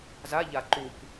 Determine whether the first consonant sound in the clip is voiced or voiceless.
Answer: voiced